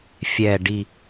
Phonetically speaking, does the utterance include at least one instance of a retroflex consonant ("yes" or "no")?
yes